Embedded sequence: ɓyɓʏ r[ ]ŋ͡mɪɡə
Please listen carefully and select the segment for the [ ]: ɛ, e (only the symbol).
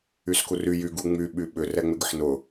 ɛ